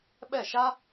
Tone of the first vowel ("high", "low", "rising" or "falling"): falling